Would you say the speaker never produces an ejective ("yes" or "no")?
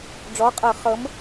no